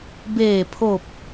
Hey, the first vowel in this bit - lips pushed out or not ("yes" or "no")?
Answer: no